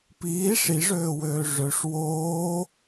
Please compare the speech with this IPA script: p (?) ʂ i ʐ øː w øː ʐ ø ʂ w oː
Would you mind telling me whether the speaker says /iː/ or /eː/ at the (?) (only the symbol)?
iː